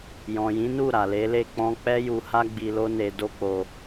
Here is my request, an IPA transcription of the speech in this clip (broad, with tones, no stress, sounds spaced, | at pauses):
j ɔ̃˨ j ĩ˨˦ n u˦˨ ɾ a˨ l e˨˦ l e˦˨ k͡p ɔ̃˧ k͡p ɛ˦ j u˧ h a˦ ɡ͡b i˧ l o˦ n e˧ d o˦ k͡p o˧